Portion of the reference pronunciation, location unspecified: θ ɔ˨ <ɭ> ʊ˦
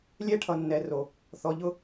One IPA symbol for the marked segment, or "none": ʎ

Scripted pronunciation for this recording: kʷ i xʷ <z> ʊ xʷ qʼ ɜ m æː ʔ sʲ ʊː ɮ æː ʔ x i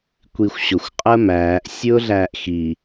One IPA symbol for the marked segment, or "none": ɕ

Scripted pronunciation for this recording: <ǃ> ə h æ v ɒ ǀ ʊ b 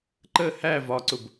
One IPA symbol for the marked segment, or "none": ǃ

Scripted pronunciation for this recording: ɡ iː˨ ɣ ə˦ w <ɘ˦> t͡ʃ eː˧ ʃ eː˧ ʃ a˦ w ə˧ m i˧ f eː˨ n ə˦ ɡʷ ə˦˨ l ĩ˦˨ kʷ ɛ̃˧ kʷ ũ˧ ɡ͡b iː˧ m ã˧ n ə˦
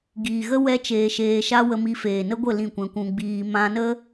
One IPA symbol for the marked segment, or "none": ɛ˦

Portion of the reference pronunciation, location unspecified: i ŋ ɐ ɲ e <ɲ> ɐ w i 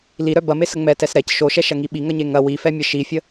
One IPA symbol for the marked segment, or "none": ŋ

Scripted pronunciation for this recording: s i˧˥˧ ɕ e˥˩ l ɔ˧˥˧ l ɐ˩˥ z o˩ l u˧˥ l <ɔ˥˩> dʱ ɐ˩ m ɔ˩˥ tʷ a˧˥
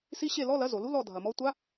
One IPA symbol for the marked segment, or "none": ɔ˥˩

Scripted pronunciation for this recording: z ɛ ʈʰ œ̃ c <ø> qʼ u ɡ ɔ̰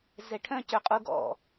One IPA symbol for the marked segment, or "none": ø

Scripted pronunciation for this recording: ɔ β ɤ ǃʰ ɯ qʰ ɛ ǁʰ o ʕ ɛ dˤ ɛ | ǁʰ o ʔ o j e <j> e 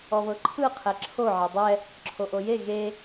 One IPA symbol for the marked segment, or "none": ɣ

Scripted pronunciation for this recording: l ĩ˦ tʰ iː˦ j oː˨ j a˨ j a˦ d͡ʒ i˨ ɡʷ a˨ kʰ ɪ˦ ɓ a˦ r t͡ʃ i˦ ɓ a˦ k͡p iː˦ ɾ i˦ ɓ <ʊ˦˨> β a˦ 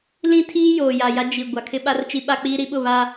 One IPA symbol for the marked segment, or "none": ʊ˦˨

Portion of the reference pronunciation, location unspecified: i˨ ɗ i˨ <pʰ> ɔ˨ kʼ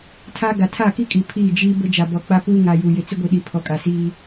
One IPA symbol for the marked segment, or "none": pʰ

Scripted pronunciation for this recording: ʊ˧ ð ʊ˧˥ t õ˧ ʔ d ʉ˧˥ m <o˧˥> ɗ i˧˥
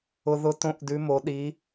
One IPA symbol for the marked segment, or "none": o˧˥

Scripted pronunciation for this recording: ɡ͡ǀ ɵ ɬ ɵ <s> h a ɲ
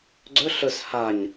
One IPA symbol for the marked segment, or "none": s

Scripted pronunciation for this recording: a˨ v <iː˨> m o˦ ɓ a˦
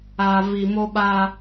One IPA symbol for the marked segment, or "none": i˨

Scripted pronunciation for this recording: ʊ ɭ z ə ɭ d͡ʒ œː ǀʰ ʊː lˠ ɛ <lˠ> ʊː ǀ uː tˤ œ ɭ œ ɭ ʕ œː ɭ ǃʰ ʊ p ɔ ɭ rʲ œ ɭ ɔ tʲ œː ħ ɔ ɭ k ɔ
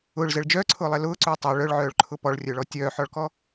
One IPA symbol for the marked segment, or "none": l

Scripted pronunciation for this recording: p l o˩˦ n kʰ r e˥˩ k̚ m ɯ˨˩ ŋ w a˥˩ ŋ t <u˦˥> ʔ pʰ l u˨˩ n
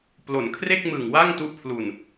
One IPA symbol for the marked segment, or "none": u˦˥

